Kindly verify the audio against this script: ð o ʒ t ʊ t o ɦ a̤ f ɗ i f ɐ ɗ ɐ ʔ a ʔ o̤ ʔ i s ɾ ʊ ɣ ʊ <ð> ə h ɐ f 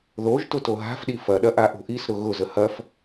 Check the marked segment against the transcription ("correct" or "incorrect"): incorrect